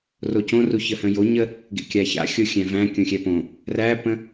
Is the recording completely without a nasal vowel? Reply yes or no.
no